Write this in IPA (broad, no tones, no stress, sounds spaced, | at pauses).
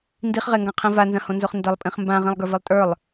n d i χ ʁ e ŋ ɡ ã qʰ ĩ v a n z ɐ̃ h õ n z o χ n d ɐ lˠ pʼ ĩ χ m b ã ʁ ĩ lˠ ɡ ə˞ v i lˠ tʼ ə˞ lˠ